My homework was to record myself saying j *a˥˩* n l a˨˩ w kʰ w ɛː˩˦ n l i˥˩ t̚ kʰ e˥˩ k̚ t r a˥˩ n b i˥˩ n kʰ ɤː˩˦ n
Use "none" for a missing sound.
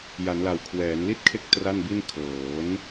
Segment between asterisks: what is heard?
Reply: a˩˦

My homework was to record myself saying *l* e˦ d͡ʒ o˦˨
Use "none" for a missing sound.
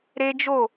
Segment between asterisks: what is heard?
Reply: ɾ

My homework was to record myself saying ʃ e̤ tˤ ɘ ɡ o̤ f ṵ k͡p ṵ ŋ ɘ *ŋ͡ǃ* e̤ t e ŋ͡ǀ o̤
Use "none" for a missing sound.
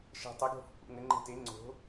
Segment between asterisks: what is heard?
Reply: ŋ͡ǃ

